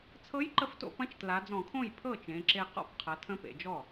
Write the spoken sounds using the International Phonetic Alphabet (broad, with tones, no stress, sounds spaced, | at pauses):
t͡sʰ ɤ˧˥ j ǃ ə˧˥ f t o̰˧ p ɐ̃˧˥ t͡ʃ t l a˩˧ d͡z ɔ̃˧˩˧ kʰ õ˥˩ j pʰ ɤ˥˩ t͡ʃ ẽ˩˧ ǁ e˧ q ɔ̰˥˩ p qʰ ɐ˩˧ tʰ ə̃˧˥ p ḛ˩˧ d͡ʒ ɔ˥˩